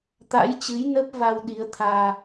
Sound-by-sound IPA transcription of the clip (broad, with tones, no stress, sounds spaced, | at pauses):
t̪ a̰˧˥ j t͡ɕ ɨ˨˦ j n ə˦˥ p̚ v a˧ w ɗ i˨˦ ə̯ t̪ʰ aː˧